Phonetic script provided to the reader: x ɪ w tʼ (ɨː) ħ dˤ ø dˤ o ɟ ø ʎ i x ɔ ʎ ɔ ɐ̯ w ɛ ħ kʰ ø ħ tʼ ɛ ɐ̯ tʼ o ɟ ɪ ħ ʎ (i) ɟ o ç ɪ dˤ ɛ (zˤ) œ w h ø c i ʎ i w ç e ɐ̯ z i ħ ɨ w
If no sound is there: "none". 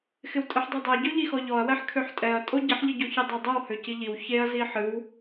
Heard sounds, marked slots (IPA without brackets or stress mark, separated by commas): ɨ, ɨ, dˤ